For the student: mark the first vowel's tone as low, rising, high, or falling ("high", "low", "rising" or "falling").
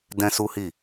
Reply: high